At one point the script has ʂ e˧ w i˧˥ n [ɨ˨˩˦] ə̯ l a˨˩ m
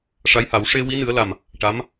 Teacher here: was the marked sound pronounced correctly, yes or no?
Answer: yes